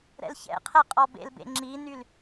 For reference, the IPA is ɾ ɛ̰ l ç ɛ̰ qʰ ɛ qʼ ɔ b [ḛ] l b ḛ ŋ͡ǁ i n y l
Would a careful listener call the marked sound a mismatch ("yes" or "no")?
no